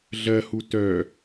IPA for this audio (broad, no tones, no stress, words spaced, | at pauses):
ɮɜhu tœ